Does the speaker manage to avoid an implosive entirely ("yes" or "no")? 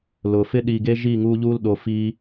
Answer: no